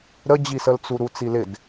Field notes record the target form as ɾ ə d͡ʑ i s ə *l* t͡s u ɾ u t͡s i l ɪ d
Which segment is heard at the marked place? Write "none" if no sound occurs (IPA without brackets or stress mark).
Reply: l